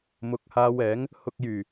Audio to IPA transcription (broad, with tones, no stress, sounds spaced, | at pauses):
m ʊ˨˥ k̚ h aː˧ w ɛː˨˥ ŋ | h ʊ˨ k̚ j yː˨˩